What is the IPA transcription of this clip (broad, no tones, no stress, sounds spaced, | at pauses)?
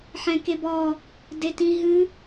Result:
ħ ɛ̃ k e b ɔ | d e t ĩ ɦ ɨ